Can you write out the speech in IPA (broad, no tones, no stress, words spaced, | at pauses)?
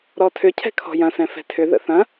ɾɔtʰʏcʰɛ̤ kʰɔ̤jɐ̃sɛ̃ fɛ̤tʰʏðə̰ θɐ̃